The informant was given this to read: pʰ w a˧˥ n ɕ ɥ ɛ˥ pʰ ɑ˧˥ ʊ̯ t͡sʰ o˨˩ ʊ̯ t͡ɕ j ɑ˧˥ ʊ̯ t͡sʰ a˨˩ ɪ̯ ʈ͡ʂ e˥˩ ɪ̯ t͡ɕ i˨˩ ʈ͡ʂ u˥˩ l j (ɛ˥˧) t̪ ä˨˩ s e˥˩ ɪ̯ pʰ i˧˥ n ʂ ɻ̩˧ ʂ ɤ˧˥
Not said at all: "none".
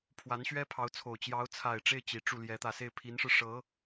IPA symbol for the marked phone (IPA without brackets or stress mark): ɛ˧˥